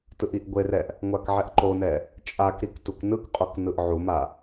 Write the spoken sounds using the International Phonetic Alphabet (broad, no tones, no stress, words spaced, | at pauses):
tɯʔiʔɡʷerɛʔ | ŋʷakʕɛʔǃonɛ | t͡ʃʼakɾik tuknɯkqʼok nɯʔʕuma